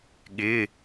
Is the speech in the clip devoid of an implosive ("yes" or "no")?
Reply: no